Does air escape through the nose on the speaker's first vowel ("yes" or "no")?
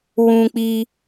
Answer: yes